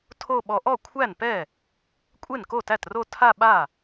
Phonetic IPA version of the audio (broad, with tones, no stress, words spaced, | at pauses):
tʰo˥˧ɓɔ˧ ʔɔ˥˩kʷʰæ˥˩npɛ˥˩ | kʷʼe˥˩nko˥˩tæ˥˩tro˥˧ tʰa˥˧ɓa˥˩